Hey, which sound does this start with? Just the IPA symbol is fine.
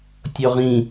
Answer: tʲ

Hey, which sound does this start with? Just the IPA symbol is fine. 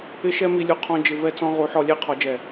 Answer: ɪ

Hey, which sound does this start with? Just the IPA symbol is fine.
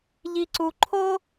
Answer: ʎ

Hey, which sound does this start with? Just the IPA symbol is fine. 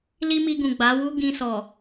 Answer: l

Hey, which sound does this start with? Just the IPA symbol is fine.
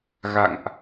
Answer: ɣ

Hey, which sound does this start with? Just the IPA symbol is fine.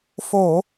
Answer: f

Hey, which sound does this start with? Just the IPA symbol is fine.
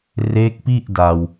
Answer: r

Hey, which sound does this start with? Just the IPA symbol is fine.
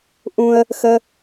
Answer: ʔ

